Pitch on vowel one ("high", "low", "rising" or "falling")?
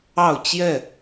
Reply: falling